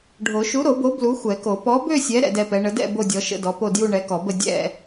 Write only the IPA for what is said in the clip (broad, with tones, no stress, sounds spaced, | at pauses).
ɖʱ o˨˩˦ ʃ u˨˥ ɾ o˨˩˦ b o˨˥ b l u˨˥ xʷ ɛ˨˩˦ k o˨˩˦ p ɔ˨˥ b ø˥˧ sʲ ɛ˨˥ ɾ ɛ̰˥˧ d ɛ˥˧ p ɛ˨˥ ɳ ə˨˥ d ɛ̰˥˧ b o˥˧ dʲ ɔ˨˥ ʃ ə̰˥˧ d ɔ˨˥ p o˥˧ d j u˥˧ ɳ ɛ˨˥ k ɔ˨˩˦ b ə˥˧ dʲ ɛ̰˥˧